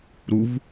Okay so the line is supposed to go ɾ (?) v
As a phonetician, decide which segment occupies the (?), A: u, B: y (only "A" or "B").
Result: A